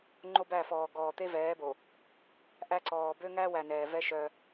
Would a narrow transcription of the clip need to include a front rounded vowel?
yes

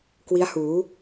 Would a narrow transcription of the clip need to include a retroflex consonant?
no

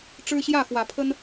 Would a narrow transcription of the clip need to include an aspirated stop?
yes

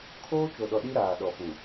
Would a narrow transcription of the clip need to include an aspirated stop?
yes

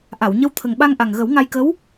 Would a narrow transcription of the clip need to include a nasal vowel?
no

